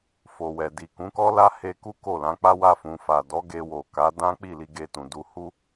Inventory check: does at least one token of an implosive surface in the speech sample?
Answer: no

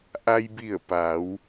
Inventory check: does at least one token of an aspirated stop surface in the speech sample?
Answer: no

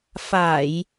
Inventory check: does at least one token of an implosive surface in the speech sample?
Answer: no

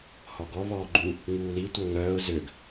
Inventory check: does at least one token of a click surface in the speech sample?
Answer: yes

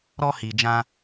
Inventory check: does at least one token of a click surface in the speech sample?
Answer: no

